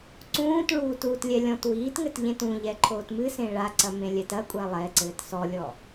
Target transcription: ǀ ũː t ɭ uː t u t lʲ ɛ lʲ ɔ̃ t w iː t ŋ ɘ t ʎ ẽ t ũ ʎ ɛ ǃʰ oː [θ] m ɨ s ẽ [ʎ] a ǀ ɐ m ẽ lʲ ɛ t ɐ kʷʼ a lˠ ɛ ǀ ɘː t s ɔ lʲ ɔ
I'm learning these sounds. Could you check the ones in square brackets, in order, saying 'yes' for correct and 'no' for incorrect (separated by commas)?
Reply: no, no